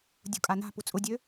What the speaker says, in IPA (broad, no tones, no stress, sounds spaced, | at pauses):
dʲ ṳ kʼ a n a̤ p u t͡sʼ ʊ dʲ ø